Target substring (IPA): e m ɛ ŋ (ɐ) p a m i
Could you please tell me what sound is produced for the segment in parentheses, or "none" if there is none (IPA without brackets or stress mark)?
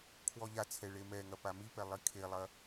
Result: ɐ